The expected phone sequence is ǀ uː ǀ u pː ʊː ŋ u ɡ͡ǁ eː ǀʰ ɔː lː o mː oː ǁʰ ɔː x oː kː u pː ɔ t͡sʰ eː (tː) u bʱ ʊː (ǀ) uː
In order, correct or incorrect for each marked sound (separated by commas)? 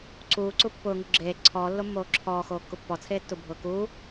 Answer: correct, incorrect